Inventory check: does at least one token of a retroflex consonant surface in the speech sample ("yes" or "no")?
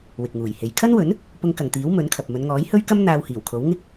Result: no